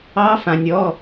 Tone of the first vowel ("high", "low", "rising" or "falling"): rising